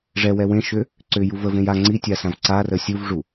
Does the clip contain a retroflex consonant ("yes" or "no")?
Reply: yes